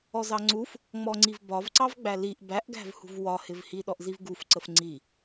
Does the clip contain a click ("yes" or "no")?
yes